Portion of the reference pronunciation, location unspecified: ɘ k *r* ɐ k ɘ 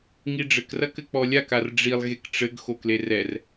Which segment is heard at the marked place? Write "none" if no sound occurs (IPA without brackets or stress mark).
r